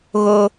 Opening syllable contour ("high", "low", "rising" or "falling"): high